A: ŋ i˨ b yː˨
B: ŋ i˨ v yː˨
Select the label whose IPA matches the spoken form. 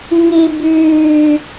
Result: A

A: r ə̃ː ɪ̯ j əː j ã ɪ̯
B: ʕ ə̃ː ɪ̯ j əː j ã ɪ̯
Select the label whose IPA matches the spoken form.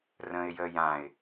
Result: A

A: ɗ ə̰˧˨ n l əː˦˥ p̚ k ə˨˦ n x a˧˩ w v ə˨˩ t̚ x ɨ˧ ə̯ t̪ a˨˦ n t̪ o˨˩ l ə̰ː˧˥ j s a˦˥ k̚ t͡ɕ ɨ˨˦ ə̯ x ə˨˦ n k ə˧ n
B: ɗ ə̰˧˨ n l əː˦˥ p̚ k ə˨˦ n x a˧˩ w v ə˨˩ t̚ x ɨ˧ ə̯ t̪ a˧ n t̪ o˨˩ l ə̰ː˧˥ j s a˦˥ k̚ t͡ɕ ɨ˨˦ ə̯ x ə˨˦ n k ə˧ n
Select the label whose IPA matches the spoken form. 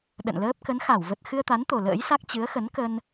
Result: A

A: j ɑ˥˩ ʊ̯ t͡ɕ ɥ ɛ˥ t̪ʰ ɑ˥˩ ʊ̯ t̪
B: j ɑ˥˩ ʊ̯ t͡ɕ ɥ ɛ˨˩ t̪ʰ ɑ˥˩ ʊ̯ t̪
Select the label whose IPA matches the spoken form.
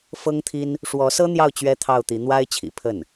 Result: A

